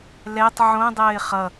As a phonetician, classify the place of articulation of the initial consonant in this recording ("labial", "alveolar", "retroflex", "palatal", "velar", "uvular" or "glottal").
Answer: alveolar